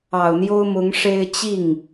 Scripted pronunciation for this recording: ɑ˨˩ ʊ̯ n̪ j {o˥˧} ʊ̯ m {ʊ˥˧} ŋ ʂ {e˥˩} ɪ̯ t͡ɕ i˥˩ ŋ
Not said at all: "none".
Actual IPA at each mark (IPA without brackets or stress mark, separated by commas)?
o˥, ʊ˧˥, e˥